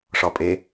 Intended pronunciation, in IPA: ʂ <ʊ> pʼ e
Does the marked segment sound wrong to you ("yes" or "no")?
yes